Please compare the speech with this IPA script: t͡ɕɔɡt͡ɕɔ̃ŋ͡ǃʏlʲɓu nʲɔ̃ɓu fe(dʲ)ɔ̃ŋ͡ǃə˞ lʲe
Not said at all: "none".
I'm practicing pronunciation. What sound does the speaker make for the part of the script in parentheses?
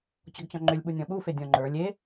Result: dʲ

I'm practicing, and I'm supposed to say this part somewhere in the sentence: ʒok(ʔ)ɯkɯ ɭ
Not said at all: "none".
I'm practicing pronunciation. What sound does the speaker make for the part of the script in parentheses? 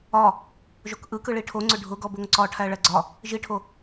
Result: ʔ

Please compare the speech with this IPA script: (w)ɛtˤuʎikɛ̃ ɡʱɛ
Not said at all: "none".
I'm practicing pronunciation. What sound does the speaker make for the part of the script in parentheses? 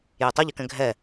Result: j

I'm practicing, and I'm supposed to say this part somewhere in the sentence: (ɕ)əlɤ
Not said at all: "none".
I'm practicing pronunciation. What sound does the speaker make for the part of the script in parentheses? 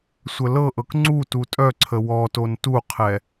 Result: sʷ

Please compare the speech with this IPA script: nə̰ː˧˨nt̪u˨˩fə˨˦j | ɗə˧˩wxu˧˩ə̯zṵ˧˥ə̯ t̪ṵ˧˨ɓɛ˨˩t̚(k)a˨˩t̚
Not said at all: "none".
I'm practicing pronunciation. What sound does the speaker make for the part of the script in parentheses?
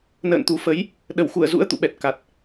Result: k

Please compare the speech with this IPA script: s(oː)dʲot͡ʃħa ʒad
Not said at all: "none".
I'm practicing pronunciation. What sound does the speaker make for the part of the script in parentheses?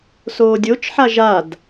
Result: oː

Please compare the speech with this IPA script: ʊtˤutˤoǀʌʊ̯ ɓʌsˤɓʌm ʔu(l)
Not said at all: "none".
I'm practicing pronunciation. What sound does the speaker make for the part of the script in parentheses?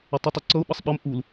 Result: l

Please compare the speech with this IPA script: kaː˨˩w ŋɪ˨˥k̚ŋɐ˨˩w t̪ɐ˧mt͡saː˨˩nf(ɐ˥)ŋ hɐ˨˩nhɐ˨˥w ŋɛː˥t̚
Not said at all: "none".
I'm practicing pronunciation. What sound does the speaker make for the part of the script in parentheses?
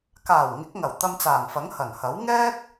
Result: ɐ˨˥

